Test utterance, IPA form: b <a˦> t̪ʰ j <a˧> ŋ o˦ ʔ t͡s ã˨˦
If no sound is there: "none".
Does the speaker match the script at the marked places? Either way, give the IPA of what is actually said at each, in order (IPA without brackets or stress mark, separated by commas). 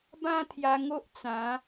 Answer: ã˦, a˧